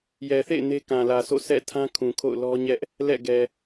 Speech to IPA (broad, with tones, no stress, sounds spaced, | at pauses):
j ɛ˨ θ ḛ˦˨ ɪ̯ n e˦ k ã˨ l ä˨ sʰ o̰˦˨ sʰ ɛ̰˦˨ tʰ ã˦ kʰ ũ˨ kʰ o̰˦˨ ʊ̯ l ɔ˦ ɲ ɛ˦ ʔ | l ɛ̰˦˨ ɡ ɛ˨